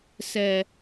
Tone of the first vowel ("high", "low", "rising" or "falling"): low